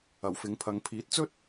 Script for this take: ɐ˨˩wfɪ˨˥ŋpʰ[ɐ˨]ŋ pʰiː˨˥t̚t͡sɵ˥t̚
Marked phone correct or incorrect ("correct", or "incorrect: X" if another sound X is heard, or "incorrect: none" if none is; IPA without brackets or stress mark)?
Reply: incorrect: ɐ˨˧